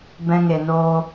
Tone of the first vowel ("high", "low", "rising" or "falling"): high